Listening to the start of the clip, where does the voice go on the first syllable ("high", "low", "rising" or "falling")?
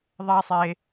high